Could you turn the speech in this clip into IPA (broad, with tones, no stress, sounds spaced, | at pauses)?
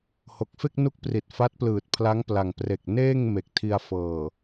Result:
h o˨˩ k̚ f e˥˩ k̚ n u˦˥ k̚ p r i˨˩ t̚ f a˦˥ t̚ p l ɯː˨˩ t̚ pʰ l a˦˥ ŋ p l a˨˩ ŋ p r e˨˩ k̚ n eː˥˩ ŋ m e˨˩ k̚ tʰ i˧ a̯ f ɤː˨˩